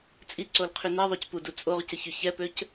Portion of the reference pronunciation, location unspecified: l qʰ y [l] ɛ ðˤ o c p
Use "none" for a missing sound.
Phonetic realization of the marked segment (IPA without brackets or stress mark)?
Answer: n